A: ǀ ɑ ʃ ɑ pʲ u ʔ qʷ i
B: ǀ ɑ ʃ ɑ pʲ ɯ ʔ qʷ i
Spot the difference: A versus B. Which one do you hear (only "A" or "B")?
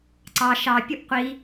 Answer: A